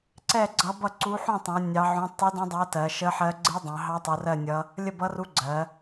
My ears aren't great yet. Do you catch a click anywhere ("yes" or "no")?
yes